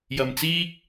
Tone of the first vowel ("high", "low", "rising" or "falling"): low